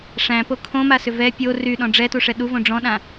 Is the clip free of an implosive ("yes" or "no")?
no